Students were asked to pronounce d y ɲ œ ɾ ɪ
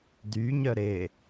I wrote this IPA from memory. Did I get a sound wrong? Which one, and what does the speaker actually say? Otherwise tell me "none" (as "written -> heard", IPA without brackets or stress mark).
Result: none